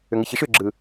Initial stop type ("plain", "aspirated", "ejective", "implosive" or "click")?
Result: click